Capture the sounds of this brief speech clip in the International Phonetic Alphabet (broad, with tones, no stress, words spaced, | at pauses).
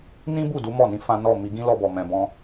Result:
nĩ˦bu˦˨ du˨˦mɔ˦˨nĩ˨˦ fã˦ nɔ˦˨ mi˧ɡĩ˦lɔ˧bɔ˨ mɛ̃˨bɔ̃˧